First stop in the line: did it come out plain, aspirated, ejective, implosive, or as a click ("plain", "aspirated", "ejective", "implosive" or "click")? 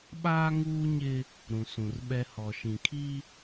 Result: implosive